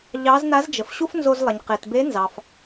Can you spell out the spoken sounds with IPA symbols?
ʎ ɑ˧˥ z n a˧˥ z d͡ʒ ə˩ f ɕ u˥ f n z o˧ z lˠ ɐ˩ ɲ q e˩ t b e˧˥ n z ɑ˩ f

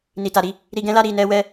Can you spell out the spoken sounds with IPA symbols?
n i˨ t a˨ ɾ i˧ | ɾ i˧ ɡ ɛ̃˦ l a˦ ɾ i˧ n ɛ˦ w ɛ˦

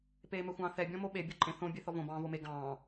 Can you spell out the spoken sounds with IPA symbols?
p eː m ɛ xʷ ɑ̃ː θ ɛ bʲ ɔ̃ m o ɓ e bʲ o ǃʼ ẽ θ õ bʲ e θ ɔ v õ b ɑ̃ː v o m e ɡ ɑ̃ː

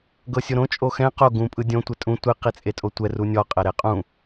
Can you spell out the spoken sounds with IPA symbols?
ɡ ɤ sʲ o ɾ õ t͡ʃʼ o x ɛ̃ q o ɡ ũ pʼ ɯ dʲ õ tʷ ɛ tʼ ũ tʷ i q i t͡sʼ e tʼ o tʷ ɛ r u nʲ ɔ qʼ ɛ ɾ e qʼ ũ

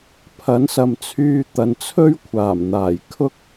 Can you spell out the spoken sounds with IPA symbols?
pʰ ɐ˨˥ n s ɐ˨ m t͡sʰ yː˧ t̪ ɐ˨ n t͡sʰ ɵ˥ ɥ kʷʰ aː˨˩ m n̪ aː˨˩ j kʰ ʊ˥ k̚

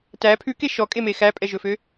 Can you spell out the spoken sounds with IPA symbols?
t æ pʰ ʉ k e ʃ ɔ kʼ e m e x æ pʼ ɛ ʒ ɵ f ø

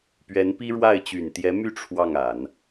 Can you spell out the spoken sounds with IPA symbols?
p ɥ ɛ˧˥ n p i˥ ɻ w a˥˩ ɪ̯ t͡ɕ y˨˩ n t̪ j ɛ˧˥ m y˥˧ ʈ͡ʂʰ w ɑ˥˩ ŋ a˨˩˦ n

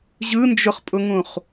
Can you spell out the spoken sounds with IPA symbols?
ʑ ɯ n d͡ʒ ʊ χ pʼ ʊ ŋ ũ χ

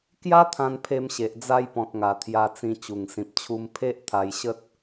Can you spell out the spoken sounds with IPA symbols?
k j a˦ t̪ʰ ã˧ n pʰ e˧ m ɕ e˨ ʔ d͡z a˧ j p ɔ̃˨ t̚ ŋ a˨˩ t̪ʰ j a˧ t͡s ĩ˧ t͡ɕ u˨˩ ŋ s ĩ˨ p̚ t͡ɕʰ u˧ m pʰ e˦ ʔ t̪ʰ a˧ j ɕ ə˦ t̚

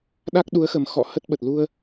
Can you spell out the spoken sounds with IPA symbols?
ɗ a˦˥ k̚ ɗ u˨˦ ə̯ x ə˨˩ m x ɔ̰˧˨ h ə˦˥ t̚ ɓ ə˨˩ t̚ l u˧ ə̯

